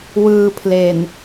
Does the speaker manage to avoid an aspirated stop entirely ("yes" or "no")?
no